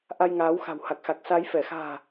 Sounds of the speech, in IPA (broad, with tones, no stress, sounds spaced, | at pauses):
ʔ a˧ j ŋ aː˨˦ w x a̤˨˩ w h a˨˩ k̚ x a˨˩ k̚ s a˨˦ j f ɛ˧˩ x a̤ː˨˩